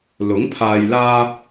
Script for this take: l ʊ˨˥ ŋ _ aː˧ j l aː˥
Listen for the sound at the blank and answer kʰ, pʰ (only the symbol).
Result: pʰ